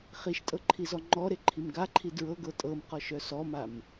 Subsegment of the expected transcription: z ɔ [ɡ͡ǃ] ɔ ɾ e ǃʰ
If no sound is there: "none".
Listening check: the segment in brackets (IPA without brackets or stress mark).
ŋ͡ǃ